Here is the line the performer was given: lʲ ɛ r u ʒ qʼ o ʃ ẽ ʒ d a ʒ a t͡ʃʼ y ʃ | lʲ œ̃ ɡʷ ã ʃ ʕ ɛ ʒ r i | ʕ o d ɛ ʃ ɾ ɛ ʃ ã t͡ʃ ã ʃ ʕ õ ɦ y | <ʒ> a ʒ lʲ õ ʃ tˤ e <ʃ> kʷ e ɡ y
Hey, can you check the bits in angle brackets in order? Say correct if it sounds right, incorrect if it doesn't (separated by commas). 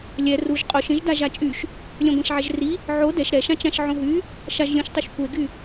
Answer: incorrect, correct